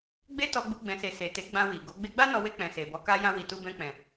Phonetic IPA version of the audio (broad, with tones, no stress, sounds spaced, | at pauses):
ɡ͡b e˦ t ɔ˧ ɡ͡b u˧ ɡ͡b ɛ̃˨ s e˨ s e˨ t e˨˦ ɡ͡b ã˧ w i˨ ɡ o˨˦ ɡ͡b e˧ ɡ͡b a˦ n ɔ˧ w e˧ k͡p ɛ̃˨ s e˨ b ɔ˨˦ k a˧ j ã˧ w i˨ t u˧ b ɛ̃˧ k͡p ɛ̃˨